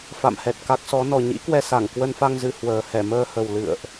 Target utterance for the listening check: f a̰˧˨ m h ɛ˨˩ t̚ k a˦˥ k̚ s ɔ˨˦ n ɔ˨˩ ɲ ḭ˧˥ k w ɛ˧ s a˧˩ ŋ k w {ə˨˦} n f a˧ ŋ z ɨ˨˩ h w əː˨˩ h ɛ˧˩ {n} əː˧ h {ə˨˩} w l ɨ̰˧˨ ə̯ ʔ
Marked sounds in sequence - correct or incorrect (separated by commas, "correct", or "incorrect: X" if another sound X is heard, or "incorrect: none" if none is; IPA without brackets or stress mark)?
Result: incorrect: ə˧, incorrect: m, correct